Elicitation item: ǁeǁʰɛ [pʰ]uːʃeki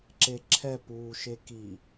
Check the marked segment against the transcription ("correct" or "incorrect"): incorrect